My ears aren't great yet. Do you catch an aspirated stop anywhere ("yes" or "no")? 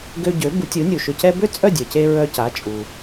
no